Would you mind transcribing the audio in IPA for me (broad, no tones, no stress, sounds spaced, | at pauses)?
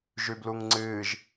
ʒ ʉ b l u ŋ ŋ͡ǀ ɨː ʒ